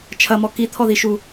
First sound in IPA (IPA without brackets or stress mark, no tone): t͡ʃʰ